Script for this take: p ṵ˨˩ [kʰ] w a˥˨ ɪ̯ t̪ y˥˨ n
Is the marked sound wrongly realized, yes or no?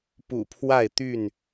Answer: yes